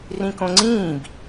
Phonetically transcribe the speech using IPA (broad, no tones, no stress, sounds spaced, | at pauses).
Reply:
r ĩ k õ ŋ͡ǀ ĩː b